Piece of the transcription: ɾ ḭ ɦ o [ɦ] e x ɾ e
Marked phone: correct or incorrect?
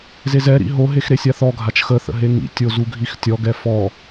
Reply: correct